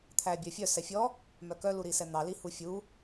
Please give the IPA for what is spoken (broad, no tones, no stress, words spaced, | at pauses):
t̪ʰæbʲœfʲœ sɛfʲɔ | mœkœ luɾisɛn̪ɑ lihufʲu